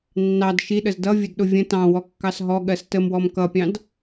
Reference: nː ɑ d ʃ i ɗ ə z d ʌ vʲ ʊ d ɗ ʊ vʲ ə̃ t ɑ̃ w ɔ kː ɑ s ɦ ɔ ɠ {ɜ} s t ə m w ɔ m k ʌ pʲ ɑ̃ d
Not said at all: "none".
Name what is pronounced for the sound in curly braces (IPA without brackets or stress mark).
ɜ